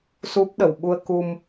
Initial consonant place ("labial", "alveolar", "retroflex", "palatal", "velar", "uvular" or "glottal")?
alveolar